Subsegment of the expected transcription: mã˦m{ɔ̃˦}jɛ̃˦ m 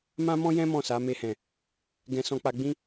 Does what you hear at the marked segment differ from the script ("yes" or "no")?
no